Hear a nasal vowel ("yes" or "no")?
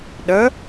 no